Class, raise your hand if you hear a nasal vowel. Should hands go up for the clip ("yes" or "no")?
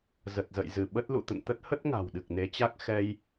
no